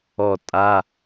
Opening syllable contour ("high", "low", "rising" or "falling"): falling